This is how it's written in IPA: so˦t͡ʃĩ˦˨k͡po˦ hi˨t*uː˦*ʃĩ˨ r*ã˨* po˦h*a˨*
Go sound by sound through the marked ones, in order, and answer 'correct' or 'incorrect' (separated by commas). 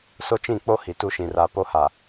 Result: incorrect, incorrect, correct